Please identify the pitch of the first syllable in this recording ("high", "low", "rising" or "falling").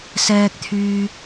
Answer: low